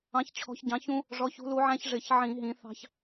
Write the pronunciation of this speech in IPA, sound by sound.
ɑ̃˨˦ ç t͡ɕʰ ɔ̤˨˦ ç ɟ ɑ̃˨˦ ç ũ˦ | ʐ ɔ˨˦ ç ṳ˨˦ l u˨˦ ʕ æ̃˦ ç ʐ ɪ˧˩˧ ç ʕ ĩ˧˩˧ ɦ ĩ˨˦ θ ɑ̤˦ ç

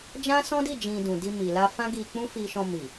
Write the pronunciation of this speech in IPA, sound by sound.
d͡ʒ ã˦ s ɔ̃˦ d i˦˨ d͡ʒ ĩ˨ d ũ˨ d i˧ m i˨ l a˧ f ã˦ ɡ i˧ k͡p ũ˦ f i˧ ʃ ɔ̃˧ m i˨

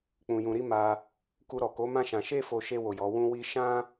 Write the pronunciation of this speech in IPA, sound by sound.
k͡p ũ˧ j ũ˧ ɾ i˦ m a˧ | k u˧ ɾ ɔ˨ k o˨˦ m ã˦ ʃ ã˧ ʃ e˦ f o˧ ʃ e˧ w o˨ j ɔ˨˦ w ũ˦ w i˦ ʃ ã˦

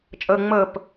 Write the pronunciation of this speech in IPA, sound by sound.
t͡ʃʼ ɤ ŋ͡m ɤ p

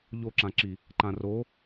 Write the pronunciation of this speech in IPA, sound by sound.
ʎ o ǁ ã ǁ i | ǃ ã r o

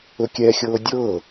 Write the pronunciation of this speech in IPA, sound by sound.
ɵ kʲ ɛ xʲ ɤː dʲ ɤː

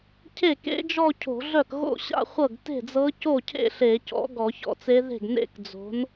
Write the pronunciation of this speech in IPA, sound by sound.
cʰ e˥˩ k ḛ˧˥ d͡ʒ ɔ˥˧ cʰ o̤˧˩˧ ɮ œ˥˩ k ɣ o̰˥˧ ɕ a̰˥˧ χʷ ɤ˥˩ ɡ t e̤˥˩ d͡z ɤ˧˥ c o˥˩ cʰ ḛ˥˧ ɬ e˧˩˧ c ɔ̰˩˥ ɡ ɔ˧˩˧ ç ɔ̰˧˥ t͡s e˧˥ ð e̤˥˩ ɡ n ḛ˥˧ k d͡z o̤˩˥ n

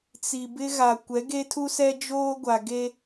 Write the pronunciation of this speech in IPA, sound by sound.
t͡s i˨ b ɪ˦ ɣ a˨ kʷ ɛ˨˦ ɡ e˦ tʰ u˦ s ɛ˦ d͡ʒ oː˦ ɡʷ a˨ ɡ e˦

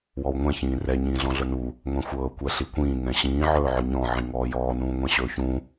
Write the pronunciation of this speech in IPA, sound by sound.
w ɔ w ŋʷ ɛ̃ ç ĩː r ɛ ɲ ĩː ɮ ɔ̃ ɮ ɵ n u | ŋʷ ɛ̃ xʷ ɤː kʷ ɛ ɬ i kʷ ĩː ŋ ɛ̃ ɕ ĩː ʕ ɵː ʕ ɵ ɲ ɔ̃ ʕ ĩ ŋ ɔː j ɔː n ũː ŋʷ ɛ̃ ɕ ɵː ç ũ

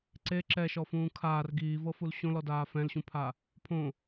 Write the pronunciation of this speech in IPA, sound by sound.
ǀ e ǁ ɛ ʃ ɔ f ũː kʰ aː r ɡ iː v ɤ f u l ɕ õ l ɔ d aː f ɛ̃ l ɕ ũ pʰ a | pʰ õ

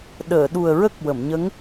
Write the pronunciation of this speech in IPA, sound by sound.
ɗ əː˨˩˨ ɗ u˨˩ ə̯ ɹ ə˦˥ k̚ w ə˨˩˨ m ɲ ə˧˥ ŋ

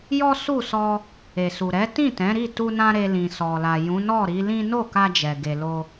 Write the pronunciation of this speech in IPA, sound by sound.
j ɔ˦ s u˦˨ s ɔ˧ | e˨ s u˨ ɾ ɛ˨˦ t ĩ˦˨ t ɛ̃˨˦ ɾ i˦˨ t u˧ n ã˧ ɾ e˧ l ĩ˨ s ɔ˨ l a˨ j ũ˨˦ n ɔ˦˨ ɾ i˨˦ l ĩ˦ n o˦˨ k a˧ d͡ʒ ɛ˨ ɡ e˨ l o˧

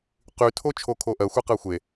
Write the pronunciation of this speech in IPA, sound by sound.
q y tʰ o t͡ʃʰ o kʰ o ʔ ɜ xʷ ɛ q ɜ xʷ e

